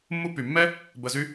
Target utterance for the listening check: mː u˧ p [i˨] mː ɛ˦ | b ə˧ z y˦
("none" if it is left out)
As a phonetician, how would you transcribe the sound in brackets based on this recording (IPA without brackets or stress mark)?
y˨